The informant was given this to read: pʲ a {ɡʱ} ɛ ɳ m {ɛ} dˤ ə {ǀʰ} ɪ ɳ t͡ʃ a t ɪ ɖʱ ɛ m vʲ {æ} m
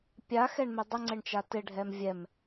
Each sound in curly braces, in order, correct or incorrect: incorrect: x, incorrect: ɪ, incorrect: ŋ͡ǀ, incorrect: ɛ

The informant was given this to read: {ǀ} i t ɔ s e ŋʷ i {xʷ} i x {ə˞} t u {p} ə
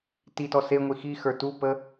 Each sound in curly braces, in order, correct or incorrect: incorrect: t, incorrect: x, correct, correct

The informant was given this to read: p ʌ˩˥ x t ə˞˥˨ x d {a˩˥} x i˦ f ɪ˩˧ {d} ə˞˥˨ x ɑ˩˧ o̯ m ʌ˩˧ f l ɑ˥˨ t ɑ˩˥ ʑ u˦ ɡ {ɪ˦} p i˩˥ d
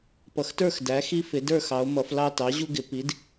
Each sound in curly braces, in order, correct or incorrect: incorrect: æ˩˥, correct, incorrect: ɪ˩˧

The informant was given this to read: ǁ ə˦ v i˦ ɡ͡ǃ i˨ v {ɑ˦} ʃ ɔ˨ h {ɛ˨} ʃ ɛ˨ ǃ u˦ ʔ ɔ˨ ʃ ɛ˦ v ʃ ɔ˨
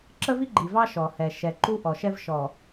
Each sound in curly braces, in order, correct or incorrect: correct, correct

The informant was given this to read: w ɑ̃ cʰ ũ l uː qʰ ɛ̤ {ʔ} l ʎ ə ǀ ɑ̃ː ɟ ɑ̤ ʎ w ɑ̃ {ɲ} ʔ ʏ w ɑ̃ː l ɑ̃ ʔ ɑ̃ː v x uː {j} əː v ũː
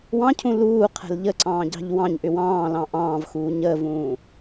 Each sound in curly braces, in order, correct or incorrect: incorrect: none, correct, incorrect: ɲ

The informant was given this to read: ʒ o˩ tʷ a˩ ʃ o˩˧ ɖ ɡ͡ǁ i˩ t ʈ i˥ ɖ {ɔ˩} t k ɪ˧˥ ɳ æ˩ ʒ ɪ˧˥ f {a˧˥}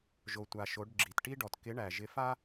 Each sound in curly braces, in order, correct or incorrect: correct, incorrect: a˥

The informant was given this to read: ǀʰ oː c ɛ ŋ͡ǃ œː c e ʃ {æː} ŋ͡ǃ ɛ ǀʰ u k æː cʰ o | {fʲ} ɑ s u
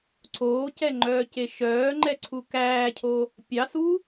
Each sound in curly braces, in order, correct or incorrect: incorrect: œː, incorrect: pʲ

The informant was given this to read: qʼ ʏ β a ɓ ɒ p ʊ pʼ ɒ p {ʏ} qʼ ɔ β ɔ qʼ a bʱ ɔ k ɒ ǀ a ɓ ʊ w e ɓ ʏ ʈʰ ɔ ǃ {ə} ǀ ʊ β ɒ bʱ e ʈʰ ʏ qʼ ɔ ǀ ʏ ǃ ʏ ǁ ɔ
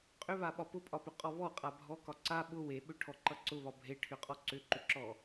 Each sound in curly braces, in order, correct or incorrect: correct, incorrect: ʌ

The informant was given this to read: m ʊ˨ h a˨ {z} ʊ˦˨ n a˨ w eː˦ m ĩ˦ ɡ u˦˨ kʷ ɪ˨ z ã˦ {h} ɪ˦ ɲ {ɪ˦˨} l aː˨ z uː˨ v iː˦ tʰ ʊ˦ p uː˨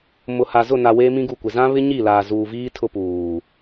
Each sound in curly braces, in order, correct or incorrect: correct, incorrect: β, incorrect: i˦˨

